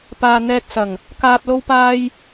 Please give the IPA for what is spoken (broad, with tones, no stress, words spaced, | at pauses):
paː˨ n̪ɛː˨k̚sɐ˨˩ŋ | kaː˨t̚lo˧wpaː˧j